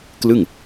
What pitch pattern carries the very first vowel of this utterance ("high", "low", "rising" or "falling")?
falling